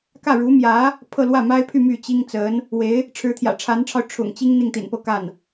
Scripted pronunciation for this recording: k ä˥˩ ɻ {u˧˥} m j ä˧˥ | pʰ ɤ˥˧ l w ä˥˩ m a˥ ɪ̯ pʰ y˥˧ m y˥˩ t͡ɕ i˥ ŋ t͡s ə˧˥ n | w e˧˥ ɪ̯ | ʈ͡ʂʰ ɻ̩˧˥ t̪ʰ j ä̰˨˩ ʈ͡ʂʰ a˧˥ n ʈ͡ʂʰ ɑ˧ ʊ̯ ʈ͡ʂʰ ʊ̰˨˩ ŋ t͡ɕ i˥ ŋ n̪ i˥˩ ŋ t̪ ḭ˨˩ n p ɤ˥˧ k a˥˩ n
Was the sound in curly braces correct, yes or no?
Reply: yes